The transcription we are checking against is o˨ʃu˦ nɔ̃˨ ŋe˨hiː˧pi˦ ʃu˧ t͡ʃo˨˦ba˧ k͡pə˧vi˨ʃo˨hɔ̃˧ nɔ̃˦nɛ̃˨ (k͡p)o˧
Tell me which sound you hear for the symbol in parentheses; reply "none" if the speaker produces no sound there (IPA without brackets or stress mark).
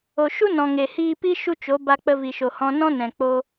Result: k͡p